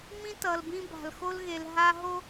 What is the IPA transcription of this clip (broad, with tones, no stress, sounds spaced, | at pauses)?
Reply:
m ĩ˦ t ʌ˨ l b ĩ˦ b a̤˨ l x o˦ l ɣ e˨ l ɦ a˦ ɦ o˦